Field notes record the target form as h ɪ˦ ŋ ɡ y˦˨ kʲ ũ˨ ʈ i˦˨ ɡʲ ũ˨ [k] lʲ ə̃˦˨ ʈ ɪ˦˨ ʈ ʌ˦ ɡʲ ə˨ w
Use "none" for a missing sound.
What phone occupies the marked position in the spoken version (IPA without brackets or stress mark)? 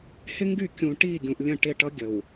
ʔ